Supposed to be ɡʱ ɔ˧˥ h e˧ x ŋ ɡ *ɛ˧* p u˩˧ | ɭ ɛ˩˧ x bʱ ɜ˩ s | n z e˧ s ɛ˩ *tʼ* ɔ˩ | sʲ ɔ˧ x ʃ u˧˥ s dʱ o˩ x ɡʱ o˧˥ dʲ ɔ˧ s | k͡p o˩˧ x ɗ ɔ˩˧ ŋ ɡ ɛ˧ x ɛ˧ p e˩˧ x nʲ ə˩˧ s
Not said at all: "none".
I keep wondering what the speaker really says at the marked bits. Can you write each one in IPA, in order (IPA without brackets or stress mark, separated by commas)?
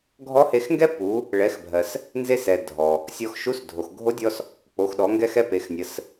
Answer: ɛ˥, dʱ